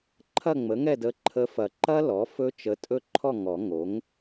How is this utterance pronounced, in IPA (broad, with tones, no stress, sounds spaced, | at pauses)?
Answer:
ǃʰ ɐ˥˨ ŋ͡m ə˩˥ ŋ ɛ˥˨ d ə˧ ǃʰ ə˧˥ f ɐ˨˩˦ ǃ ɐ˥ l ɔ˩˥ f ɵ˥ t͡ʃ ə˧˥ tʼ ɵ˥˨ ǃʰ ɔ˥˨ ŋ ɔ˨˩˦ ŋ o˩˥ ŋ